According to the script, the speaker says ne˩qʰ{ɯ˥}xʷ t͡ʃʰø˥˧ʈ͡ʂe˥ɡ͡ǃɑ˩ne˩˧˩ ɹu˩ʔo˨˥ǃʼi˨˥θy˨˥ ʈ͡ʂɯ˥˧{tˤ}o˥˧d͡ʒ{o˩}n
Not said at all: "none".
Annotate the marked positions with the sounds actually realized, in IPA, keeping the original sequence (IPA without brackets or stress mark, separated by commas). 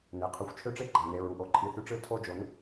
ɯ˩˧˩, tʰ, o˨˥